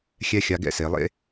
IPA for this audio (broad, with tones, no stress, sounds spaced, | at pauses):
xʲ ɛ˥ xʲ a˧ ɡ ɛ̰˥ s e˩˧ lˠ ḛ˥